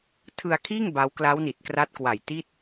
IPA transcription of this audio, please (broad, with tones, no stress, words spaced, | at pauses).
tʰɯ˧a̯kʰiː˥˩ŋ ba˦˥w kla˦˥wni˨˩t̚kra˦˥t̚kwa˨˩j ti˥˩t̚